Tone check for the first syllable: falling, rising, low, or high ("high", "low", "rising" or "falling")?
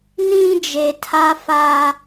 high